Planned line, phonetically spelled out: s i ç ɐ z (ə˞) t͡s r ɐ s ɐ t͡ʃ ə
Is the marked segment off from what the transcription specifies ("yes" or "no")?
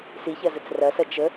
yes